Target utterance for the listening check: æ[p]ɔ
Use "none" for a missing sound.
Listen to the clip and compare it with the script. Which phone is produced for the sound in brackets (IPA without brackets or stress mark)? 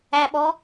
ɓ